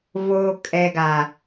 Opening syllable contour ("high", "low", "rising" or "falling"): low